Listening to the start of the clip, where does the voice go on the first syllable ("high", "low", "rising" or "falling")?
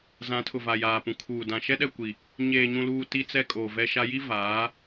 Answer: rising